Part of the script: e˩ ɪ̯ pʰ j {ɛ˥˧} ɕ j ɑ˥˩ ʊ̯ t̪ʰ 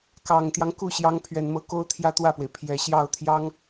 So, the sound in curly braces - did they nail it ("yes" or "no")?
no